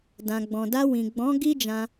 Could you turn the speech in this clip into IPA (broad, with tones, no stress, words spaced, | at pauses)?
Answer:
dã˨ɡ͡bɔ̃˨da˧ wĩ˨ ɡ͡bɔ̃˨˦ ɡi˦d͡ʒã˧